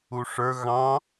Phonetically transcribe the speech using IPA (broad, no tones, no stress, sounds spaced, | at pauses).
u ʂ ə˞ ɣ ɑ̃